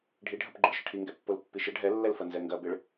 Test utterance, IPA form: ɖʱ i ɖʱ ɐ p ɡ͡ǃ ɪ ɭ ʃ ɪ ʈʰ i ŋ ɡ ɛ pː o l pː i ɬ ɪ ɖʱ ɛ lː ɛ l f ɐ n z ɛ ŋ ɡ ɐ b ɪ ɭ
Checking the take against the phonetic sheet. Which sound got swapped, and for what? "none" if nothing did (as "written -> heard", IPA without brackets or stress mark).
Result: ɬ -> ʃ